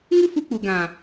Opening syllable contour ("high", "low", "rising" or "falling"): high